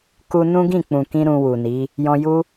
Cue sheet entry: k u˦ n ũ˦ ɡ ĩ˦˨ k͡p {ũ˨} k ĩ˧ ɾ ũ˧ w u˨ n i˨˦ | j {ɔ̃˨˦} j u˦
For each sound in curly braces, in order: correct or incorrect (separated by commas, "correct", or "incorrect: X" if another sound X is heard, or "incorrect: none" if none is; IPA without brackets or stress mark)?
correct, incorrect: ɔ̃˧